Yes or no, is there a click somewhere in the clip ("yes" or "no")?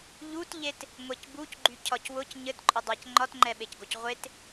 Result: yes